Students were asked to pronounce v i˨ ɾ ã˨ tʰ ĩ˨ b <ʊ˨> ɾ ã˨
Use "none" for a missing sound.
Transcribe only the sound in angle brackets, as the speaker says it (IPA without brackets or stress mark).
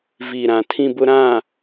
ʊ˨